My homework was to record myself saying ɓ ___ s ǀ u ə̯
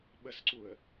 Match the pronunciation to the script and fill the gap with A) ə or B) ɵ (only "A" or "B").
A